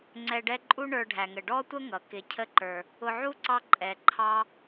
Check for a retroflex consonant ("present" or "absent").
present